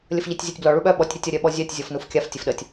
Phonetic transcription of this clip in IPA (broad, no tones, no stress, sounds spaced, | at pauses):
lʲ ə f ʎ e tʲ zʲ o tʲ b l ɔ ɭ u ɓ œ ɓ ɔ tʲ ɾʲ ə tʲ ʌ ɾʲ œ ɓ ɔ zʲ œ tʲ zʲ ɔ f n u f kʲ a f tʲ ə f ɗ ə tʲ